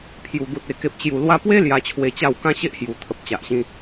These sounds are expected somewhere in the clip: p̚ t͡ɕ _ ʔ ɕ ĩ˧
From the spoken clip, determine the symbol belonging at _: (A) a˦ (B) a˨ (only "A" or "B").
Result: B